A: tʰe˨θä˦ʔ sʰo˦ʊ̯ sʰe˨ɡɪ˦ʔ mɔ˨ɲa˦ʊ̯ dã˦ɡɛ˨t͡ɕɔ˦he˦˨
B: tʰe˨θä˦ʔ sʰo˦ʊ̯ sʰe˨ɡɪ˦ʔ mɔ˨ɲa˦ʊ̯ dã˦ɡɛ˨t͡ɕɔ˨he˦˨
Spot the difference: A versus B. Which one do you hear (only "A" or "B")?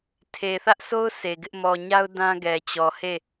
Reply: B